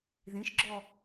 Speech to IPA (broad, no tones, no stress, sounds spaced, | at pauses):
ð ĩ ʃ ɡ͡ǁ ɔ